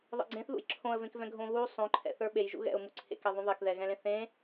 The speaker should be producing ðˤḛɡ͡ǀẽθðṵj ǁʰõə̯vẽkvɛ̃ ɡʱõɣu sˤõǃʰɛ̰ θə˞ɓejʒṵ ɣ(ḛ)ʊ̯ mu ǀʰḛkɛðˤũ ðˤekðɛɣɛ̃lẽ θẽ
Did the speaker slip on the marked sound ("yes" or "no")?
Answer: yes